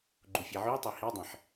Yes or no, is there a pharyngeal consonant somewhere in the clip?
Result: yes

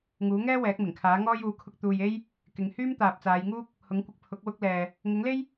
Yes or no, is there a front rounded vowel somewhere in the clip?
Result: yes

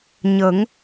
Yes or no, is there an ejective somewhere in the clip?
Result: no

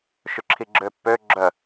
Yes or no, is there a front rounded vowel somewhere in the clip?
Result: yes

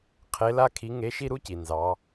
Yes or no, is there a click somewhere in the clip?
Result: no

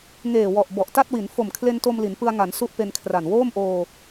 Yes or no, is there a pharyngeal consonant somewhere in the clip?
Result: no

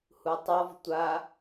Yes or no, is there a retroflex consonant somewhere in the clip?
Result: no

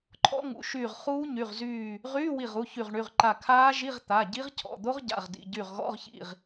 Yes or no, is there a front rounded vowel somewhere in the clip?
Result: yes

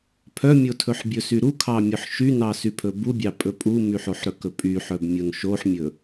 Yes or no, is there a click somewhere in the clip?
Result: no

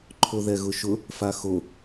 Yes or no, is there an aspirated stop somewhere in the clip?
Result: yes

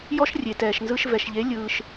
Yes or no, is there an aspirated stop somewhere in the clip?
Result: no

